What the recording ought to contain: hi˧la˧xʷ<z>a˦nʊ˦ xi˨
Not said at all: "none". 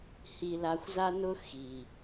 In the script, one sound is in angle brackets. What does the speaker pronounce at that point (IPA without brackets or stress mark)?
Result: z